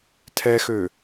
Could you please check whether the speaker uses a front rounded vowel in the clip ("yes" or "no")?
yes